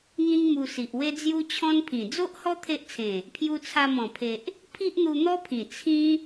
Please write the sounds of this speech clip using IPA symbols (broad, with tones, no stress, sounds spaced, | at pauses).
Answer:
ŋ ĩ˦ ŋ m u˧ s i˨ ʔ w e˦ d͡z j u˦ t͡ɕʰ ɔ̃˦ n pʰ ĩ˨˩ d͡z o˦ ʔ h ɔ˦ t̪ʰ e˦ ʔ t͡sʰ ẽ˨˩ | pʰ j u˧ t͡sʰ a˧ m ɔ̃˨˩ pʰ e˨ ʔ | pʰ i˦ ʔ n̪ u˧ n̪ ɔ˦ pʰ ĩ˨˩ t͡sʰ ĩ˦